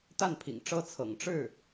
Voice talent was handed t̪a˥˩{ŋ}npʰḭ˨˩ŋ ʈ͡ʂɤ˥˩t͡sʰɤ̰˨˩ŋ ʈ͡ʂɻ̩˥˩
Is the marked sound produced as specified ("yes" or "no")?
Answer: no